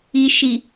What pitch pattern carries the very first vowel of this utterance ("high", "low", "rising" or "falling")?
low